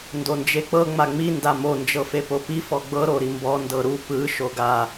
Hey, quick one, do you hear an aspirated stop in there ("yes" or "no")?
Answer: no